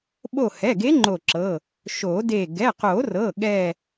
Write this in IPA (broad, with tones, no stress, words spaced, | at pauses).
ɓo˧˩hɛ˩˧˩ɡe˧˥ ŋ͡ǃo˧˩ǁɤ˩˧˩ | ʃo˨˩˦de˧˩ ɡɛ˩˧˩qo˨˩˦rɤ˩˧˩ ɠɛ˧˩